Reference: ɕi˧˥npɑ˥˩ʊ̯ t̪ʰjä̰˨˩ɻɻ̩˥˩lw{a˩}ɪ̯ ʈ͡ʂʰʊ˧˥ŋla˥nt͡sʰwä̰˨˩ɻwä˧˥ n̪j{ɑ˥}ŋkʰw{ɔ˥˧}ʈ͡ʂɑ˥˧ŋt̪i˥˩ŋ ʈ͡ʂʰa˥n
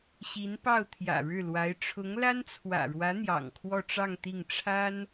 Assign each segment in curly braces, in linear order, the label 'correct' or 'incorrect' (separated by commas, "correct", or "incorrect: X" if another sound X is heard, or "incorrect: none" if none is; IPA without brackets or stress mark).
incorrect: a˧˥, incorrect: ɑ̰˨˩, correct